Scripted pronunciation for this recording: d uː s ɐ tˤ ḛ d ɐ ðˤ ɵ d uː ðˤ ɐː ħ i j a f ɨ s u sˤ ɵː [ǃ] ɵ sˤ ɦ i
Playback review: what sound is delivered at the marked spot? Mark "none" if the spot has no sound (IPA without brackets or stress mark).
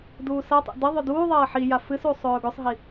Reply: ɡ